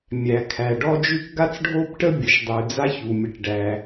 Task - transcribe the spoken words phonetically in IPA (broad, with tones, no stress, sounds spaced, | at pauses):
mʲ æ˩ kʰ æ˩ ɖ ɔ˥ d͡ʒ ʉ˥ k ɡ a˥ t͡s ɖʱ o˥ b ʈ ə˥ bʲ ə˩ ʃ dˤ ʉ˩ d͡z a˥ ç u˩ mʲ ə˩ ʈ ɖ æ˩